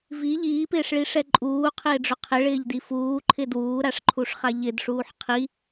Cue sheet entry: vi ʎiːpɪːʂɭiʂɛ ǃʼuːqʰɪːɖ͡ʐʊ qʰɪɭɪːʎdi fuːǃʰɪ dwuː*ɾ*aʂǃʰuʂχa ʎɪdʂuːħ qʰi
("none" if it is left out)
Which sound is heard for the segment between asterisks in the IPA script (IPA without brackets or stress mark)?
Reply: ɾ